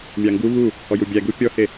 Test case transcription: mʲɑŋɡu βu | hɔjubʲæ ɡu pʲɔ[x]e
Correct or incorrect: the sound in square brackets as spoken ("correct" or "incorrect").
incorrect